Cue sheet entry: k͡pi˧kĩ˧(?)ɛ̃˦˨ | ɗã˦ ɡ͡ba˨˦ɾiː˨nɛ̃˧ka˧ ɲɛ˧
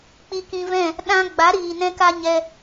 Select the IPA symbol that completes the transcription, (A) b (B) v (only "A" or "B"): B